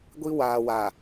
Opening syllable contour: high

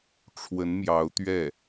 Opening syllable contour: rising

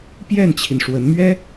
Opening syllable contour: falling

